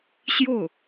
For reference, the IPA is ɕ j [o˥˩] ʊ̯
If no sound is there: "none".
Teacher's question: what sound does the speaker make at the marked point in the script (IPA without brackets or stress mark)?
o˥˩